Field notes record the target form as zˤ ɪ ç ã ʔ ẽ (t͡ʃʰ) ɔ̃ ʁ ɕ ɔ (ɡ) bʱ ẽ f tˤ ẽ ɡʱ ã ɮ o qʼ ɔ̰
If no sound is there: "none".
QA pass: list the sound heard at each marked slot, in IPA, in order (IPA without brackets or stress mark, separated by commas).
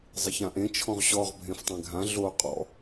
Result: t͡ʃʰ, ʁ